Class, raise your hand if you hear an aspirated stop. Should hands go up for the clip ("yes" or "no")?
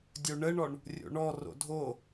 no